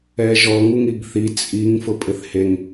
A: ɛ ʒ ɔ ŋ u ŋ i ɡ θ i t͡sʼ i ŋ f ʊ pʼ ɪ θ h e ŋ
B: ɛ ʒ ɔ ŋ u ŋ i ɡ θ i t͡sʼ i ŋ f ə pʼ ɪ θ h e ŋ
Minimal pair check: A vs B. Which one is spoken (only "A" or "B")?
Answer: A